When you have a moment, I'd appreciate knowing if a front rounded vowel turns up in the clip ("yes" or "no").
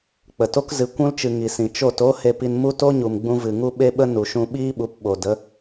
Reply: no